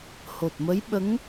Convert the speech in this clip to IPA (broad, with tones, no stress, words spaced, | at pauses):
ho˨˩t̚mə˧˥jɓə˧˥ŋ